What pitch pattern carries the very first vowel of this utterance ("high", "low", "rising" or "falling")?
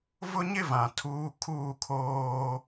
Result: high